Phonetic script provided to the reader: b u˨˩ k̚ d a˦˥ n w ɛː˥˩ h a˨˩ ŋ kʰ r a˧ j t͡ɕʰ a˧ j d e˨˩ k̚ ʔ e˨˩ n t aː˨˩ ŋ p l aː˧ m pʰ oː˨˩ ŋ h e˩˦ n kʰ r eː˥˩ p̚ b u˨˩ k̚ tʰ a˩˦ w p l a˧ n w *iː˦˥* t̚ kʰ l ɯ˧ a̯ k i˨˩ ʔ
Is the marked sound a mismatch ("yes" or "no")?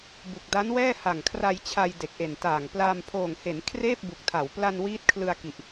no